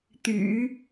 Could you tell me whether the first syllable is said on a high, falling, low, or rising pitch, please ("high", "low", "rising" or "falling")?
low